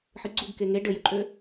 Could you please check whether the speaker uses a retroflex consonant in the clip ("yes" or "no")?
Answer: yes